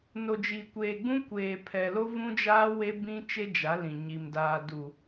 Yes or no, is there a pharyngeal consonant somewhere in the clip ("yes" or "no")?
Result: no